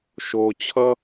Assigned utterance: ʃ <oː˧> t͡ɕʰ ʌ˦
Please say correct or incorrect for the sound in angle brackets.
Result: correct